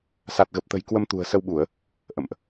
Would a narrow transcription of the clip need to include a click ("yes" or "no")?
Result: no